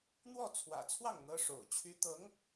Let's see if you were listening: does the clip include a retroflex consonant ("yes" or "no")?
yes